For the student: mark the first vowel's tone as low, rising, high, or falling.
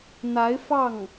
rising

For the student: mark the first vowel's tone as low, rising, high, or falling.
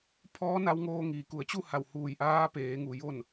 rising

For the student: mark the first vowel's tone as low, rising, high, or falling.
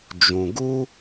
low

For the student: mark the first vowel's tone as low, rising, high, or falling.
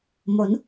rising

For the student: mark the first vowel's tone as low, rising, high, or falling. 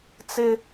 high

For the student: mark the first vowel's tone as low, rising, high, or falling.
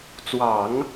low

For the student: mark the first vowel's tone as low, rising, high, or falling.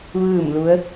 falling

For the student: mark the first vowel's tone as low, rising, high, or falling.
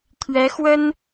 rising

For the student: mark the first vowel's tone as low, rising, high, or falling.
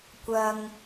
low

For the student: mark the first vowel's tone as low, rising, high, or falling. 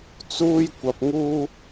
high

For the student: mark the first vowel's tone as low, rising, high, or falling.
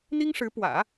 high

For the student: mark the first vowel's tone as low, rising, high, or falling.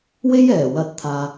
high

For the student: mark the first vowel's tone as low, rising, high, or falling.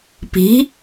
rising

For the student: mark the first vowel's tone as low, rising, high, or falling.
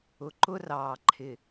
low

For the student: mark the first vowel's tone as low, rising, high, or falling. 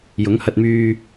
rising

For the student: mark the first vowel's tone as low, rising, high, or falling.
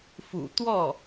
low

